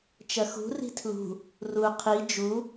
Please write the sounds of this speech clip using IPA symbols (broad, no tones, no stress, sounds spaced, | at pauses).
t͡ʃ ɐ x ṳ r i̤ tʰ l ṳ | r u qʰ i d͡ʒ u